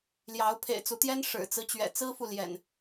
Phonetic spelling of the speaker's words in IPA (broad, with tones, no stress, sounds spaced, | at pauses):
l j ɑ˨˦ ʊ̯ pʰ ḛ˨˩ ɪ̯ t͡s u˨˦ t̪ j ɛ˦ n ʂ ɻ̩˨˩ t͡s ɹ̩˦ t͡ɕ ɥ ɛ̰˨˩ t͡s ɹ̩˦ f u˨ l j ɛ̰˨˩ n